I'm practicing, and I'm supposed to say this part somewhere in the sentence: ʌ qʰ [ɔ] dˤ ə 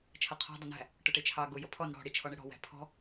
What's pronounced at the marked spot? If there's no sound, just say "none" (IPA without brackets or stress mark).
ɔ̤